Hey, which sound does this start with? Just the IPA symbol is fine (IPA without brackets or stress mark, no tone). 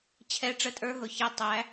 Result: t͡ɕʰ